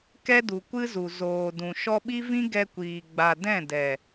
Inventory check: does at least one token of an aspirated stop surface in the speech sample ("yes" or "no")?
no